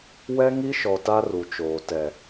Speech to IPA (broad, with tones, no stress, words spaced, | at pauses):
wɛ˦ŋi˦ʃɔ˨ ta˦ru˨t͡ʃoː˨ tɛ˨